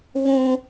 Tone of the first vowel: high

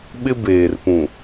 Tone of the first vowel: high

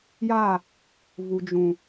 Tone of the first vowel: falling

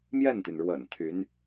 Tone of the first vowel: falling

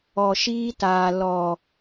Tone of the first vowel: low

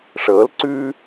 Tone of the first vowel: rising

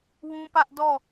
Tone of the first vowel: high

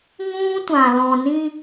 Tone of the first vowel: high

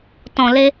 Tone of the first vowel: low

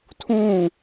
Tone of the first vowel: falling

